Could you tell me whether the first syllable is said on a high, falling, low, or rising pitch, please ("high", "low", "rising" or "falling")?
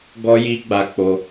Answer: high